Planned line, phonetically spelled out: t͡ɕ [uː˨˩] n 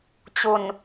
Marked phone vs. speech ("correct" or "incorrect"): incorrect